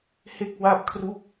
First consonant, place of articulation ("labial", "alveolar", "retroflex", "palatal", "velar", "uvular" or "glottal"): glottal